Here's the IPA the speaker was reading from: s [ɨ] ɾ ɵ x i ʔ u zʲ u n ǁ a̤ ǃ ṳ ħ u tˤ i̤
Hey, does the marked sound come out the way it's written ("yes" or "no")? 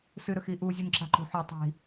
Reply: yes